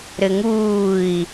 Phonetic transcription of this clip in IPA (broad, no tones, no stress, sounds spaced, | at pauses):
ɾ ɘ ŋ uː i̯